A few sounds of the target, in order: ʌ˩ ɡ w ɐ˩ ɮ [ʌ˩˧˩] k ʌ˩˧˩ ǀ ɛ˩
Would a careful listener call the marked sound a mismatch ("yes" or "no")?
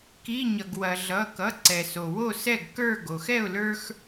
no